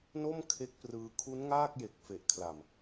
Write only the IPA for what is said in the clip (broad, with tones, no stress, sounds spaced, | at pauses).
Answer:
n o˥˩ m kʰ e˦˥ k̚ p r ɯː˧ kʰ u˦˥ n ŋ aː˥˩ k̚ j e˨˩ k̚ f e˨˩ ʔ kʰ l a˨˩ m